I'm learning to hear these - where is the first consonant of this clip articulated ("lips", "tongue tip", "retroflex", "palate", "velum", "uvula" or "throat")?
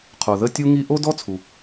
uvula